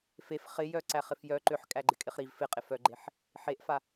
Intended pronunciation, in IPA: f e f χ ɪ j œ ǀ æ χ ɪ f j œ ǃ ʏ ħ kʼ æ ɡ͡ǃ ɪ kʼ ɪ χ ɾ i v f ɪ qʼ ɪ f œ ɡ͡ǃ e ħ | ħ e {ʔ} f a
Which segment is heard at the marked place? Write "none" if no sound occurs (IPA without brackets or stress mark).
ʔ